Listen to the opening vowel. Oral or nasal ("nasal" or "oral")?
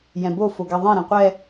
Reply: nasal